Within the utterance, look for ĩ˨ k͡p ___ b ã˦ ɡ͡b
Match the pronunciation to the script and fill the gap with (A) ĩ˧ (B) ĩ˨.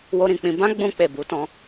A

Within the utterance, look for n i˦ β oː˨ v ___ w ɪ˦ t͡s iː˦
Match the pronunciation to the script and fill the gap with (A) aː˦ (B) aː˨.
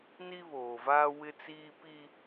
A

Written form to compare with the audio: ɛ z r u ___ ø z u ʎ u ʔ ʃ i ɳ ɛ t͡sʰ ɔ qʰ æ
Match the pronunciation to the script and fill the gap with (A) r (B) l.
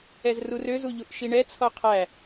A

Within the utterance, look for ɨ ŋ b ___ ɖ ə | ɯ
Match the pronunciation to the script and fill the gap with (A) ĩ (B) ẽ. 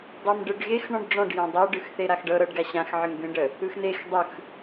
B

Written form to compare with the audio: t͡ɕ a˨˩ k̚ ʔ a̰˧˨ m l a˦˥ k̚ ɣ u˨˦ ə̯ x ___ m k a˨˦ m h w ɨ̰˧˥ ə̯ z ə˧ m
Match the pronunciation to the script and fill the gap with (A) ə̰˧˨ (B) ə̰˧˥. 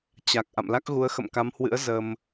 A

